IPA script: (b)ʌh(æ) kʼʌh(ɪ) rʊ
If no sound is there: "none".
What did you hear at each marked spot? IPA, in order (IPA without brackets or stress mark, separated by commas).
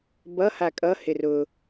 b, a, ɪ